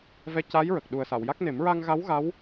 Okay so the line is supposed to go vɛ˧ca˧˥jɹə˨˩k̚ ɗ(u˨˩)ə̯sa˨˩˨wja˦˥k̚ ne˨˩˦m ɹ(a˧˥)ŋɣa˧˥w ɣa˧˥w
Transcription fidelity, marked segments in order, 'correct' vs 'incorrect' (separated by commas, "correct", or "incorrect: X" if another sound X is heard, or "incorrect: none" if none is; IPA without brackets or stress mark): correct, incorrect: a˧